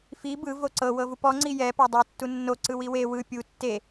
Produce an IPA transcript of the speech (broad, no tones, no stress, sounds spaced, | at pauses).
f i b ɯ v o ǀ ɤ w ɤ v u p ɔ ŋ͡ǀ i j ɛ p a dˤ u tː u nː o ǀ ɯ w i w e w ɯ pʲ u tː e